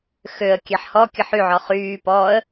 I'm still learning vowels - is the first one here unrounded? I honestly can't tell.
no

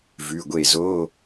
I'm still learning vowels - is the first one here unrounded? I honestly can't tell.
no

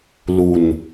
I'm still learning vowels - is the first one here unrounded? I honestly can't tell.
no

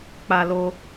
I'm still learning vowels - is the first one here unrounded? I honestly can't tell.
yes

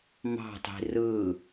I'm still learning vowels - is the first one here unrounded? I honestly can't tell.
yes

